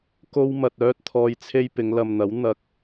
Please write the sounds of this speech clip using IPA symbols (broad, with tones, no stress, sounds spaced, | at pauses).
k o˥ w m ɐ˧ t̚ œː˥ t̚ t̪ʰ ɔː˧ j t͡sʰ e˥ j p ɪ˨˧ ŋ l ɐ˨ m n̪ ɐ˨˥ w n̪ ɐ˨ k̚